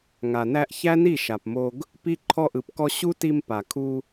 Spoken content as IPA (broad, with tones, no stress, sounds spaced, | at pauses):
ŋ a˨ n æ˧ ʔ ç æ˦ n i˦˨ ʃ a˨ p m o˧ ɡ | p i˦ ǃʰ ɔ˧ ʔ ɯ˨ p k ɔ˧ ɕ u˦ t i˧ m p a˨ kʰ u˧